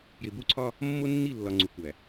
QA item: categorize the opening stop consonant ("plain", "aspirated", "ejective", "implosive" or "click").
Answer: plain